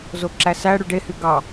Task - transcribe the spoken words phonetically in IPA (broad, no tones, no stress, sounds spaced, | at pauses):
z o ǁ æ s æ ɽ y ɖ e h y ɡ ɑ